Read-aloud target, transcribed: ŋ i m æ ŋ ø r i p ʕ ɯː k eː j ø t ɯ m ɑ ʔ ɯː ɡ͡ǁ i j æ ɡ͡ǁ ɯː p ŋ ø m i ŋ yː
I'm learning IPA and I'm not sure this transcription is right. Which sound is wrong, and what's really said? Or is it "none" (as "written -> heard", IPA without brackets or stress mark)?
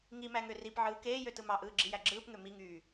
none